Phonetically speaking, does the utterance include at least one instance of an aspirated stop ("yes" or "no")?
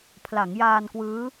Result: yes